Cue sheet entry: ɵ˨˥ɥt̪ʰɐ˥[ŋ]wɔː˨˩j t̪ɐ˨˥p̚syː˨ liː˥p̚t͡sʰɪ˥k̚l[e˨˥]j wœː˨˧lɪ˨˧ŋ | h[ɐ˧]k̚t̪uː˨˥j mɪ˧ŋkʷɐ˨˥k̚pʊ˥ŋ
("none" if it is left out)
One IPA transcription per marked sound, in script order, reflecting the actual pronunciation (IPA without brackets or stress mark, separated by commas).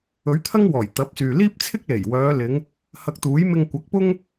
ŋ, e˨˩, ɐ˧